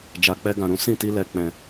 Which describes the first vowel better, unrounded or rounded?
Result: unrounded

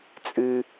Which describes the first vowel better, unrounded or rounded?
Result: unrounded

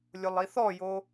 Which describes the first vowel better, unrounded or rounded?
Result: rounded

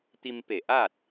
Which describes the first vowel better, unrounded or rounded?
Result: unrounded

